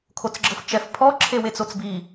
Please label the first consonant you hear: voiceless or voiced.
voiceless